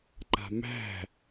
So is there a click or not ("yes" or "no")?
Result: yes